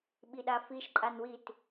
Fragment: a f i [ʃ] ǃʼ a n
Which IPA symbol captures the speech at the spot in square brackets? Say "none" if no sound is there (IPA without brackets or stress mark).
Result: ʃ